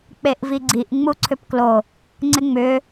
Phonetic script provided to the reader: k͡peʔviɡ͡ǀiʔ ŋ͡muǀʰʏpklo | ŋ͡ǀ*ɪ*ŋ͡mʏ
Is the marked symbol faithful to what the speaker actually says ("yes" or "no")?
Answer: yes